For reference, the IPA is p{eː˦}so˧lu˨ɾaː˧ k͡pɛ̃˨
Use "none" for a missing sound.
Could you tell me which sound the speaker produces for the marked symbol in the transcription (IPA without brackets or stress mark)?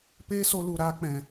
eː˦